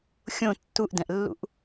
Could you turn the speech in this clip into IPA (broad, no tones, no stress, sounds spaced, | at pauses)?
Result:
xʲ õ tː u ʔ d ɛ̃ ʔ lː ṵ ʔ